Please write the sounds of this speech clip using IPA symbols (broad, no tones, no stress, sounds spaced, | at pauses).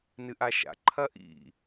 n ɨ ʔ a ʃ a̰ ǃʰ ɐ ʔ ḭ